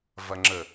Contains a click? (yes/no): yes